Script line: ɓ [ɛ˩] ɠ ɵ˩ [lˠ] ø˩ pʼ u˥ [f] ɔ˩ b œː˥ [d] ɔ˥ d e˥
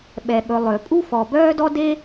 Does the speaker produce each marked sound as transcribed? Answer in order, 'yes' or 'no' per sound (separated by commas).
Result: yes, yes, yes, yes